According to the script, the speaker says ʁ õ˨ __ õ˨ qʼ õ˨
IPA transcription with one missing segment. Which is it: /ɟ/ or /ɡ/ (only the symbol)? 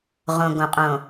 ɡ